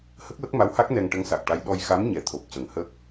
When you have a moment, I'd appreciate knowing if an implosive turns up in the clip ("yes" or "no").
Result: yes